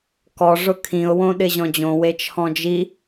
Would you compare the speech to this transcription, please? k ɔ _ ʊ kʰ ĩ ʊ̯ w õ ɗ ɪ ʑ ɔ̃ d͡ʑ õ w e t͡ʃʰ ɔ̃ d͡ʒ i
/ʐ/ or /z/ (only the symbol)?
ʐ